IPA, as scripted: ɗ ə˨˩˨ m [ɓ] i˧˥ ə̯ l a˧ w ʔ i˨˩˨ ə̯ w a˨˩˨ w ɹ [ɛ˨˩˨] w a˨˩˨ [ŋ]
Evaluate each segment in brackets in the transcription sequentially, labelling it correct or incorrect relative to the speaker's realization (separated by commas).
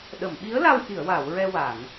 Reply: correct, incorrect, correct